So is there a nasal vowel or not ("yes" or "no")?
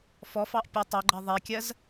no